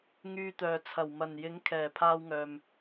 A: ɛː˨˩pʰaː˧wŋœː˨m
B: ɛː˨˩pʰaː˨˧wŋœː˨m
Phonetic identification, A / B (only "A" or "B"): A